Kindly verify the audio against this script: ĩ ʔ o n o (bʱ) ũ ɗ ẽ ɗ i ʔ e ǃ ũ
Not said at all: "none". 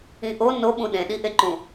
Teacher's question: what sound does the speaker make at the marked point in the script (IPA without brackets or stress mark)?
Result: ɓ